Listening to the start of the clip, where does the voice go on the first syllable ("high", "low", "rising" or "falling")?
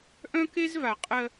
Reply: high